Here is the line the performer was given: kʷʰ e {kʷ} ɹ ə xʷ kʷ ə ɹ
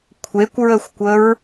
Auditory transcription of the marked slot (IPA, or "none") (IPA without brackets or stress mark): kʷ